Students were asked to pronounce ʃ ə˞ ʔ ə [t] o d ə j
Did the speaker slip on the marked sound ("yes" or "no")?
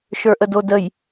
yes